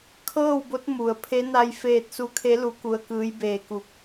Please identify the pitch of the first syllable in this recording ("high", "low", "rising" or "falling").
falling